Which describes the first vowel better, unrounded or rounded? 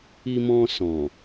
unrounded